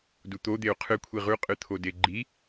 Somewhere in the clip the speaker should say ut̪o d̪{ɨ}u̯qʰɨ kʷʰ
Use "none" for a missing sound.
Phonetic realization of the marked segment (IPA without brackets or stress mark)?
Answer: e